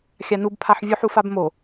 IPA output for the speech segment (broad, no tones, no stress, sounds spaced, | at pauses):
xʲ a n u b pʰ a ħ vʲ u ħ u f a b m o